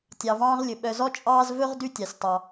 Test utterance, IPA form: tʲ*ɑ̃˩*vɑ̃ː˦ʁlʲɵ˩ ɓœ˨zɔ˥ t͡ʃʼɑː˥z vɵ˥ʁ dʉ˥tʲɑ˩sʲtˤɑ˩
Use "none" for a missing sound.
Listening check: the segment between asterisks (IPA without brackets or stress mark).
ɑ˩